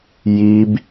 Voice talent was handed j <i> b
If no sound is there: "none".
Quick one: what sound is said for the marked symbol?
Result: i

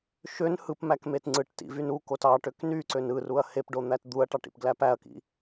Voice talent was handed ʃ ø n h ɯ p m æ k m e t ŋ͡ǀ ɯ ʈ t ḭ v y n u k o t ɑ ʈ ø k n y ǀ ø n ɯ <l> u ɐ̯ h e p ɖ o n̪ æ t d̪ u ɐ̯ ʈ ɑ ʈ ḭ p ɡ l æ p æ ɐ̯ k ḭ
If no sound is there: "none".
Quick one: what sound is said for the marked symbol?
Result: r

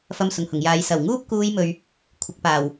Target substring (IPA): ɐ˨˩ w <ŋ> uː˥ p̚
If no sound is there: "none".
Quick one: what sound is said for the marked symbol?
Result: ŋ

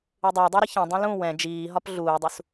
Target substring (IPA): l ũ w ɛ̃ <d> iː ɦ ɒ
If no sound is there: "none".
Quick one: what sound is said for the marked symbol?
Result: d͡ʒ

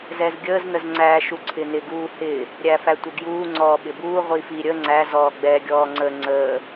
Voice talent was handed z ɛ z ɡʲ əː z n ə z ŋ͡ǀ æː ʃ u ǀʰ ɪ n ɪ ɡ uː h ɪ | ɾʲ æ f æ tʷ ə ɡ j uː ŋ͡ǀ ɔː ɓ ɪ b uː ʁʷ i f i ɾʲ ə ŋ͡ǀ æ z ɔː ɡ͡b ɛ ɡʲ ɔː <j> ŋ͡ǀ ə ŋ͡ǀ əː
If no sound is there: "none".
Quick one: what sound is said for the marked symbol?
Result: none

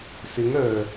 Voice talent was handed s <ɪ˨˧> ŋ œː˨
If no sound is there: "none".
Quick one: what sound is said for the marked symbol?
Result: ɪ˨˧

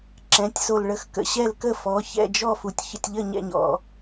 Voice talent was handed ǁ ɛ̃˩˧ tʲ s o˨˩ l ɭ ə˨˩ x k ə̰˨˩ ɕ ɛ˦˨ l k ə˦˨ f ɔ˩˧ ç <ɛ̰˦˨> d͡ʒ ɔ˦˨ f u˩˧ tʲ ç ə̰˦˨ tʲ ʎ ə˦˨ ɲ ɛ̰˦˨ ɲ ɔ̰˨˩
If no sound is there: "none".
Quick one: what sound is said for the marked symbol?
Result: ɛ̰˦˨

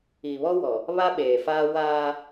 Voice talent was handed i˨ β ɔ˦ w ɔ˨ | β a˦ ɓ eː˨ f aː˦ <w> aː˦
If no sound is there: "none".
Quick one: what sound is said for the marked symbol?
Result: w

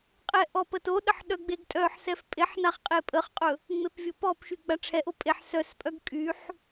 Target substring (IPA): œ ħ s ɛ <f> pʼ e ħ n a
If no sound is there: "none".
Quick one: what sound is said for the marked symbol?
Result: f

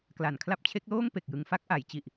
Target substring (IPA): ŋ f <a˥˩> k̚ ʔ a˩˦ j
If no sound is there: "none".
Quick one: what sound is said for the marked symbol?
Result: a˥˩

